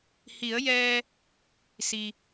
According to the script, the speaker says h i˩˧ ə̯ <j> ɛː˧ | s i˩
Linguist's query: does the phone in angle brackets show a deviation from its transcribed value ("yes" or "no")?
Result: no